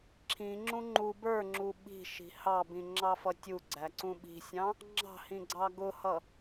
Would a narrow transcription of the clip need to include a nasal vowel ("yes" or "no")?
yes